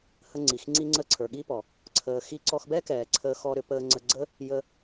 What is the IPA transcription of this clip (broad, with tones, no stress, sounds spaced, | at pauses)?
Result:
h ə˧ ŋ͡ǀ i˩ x ŋ͡ǀ i˧ ŋ͡ǀ ə˧ ǀʰ ə˞˩ ɠ i˥ p ɔ˩ | ǀʰ əː˩ x i˧ ǀ ɔ˧ x b ɛ˥ k ɛː˩ ǀʰ əː˧ x ɔ˧ ɾ ʏ˧ p əː˧ ŋ͡ǀ ə˧ ɡ͡ǀ ə˥ | j ə˧